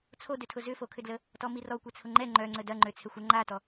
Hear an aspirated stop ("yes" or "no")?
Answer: yes